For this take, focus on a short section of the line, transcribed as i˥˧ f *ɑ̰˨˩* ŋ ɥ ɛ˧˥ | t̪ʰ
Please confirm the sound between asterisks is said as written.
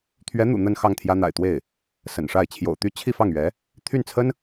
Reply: no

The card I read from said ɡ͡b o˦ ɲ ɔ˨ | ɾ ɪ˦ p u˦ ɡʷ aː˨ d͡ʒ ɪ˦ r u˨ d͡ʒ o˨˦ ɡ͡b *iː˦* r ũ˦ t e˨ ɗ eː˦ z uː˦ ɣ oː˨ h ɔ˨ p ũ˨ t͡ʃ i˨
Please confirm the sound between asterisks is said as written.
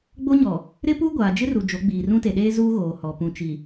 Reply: no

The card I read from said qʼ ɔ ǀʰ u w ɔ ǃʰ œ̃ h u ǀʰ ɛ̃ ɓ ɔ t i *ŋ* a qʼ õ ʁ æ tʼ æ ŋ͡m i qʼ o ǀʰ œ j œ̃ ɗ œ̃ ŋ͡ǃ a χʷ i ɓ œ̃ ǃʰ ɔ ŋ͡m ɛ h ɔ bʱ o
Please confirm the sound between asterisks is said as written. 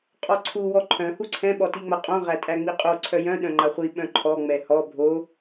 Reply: no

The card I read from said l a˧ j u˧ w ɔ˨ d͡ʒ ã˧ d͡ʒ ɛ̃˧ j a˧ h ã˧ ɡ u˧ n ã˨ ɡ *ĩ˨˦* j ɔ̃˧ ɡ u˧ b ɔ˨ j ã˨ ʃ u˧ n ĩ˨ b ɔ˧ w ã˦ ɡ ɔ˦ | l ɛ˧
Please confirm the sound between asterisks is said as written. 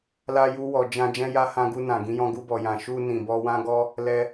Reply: yes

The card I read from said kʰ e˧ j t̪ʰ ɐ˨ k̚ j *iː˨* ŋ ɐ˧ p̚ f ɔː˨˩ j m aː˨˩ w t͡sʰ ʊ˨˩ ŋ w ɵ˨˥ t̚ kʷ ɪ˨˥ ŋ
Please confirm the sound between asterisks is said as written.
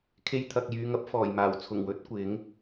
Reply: no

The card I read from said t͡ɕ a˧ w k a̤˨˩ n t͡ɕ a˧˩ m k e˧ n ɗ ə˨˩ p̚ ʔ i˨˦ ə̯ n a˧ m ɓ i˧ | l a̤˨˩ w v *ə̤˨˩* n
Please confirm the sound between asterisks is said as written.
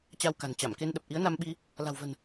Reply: yes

